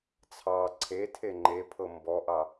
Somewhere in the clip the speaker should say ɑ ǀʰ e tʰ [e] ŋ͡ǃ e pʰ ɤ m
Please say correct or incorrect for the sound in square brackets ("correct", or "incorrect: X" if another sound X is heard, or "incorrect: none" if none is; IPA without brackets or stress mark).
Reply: correct